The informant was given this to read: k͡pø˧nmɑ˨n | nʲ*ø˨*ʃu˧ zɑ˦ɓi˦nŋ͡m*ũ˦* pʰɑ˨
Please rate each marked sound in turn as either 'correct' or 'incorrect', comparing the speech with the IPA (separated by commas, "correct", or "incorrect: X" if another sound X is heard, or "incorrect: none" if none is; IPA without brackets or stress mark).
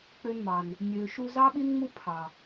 correct, incorrect: u˦